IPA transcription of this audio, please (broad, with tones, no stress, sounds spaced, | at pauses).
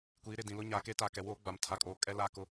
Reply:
kʷ iː˨˦ ɾ ɪ˦˨ d ĩ˨ l ʊ˦ ɲ aː˨ k e˦ t a˨ k ɛ˨ w oː˦ ɡ͡b a˨ m tʰ a˨ kʼ oː˨ kʼ ɛ˦ l a˦˨ k ʊ˦